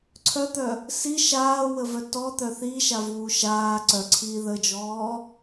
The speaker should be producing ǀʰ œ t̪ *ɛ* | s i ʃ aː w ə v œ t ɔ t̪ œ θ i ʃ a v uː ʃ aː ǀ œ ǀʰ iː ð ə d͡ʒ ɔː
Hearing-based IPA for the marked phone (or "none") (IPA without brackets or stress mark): œ